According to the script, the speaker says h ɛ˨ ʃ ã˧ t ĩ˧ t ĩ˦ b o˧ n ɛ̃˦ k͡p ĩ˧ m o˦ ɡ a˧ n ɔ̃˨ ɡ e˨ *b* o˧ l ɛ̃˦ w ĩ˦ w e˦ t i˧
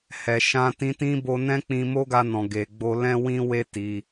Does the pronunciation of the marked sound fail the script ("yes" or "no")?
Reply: yes